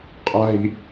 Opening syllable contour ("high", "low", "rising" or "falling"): high